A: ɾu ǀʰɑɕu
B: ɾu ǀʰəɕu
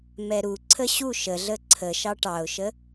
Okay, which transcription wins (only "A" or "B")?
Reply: B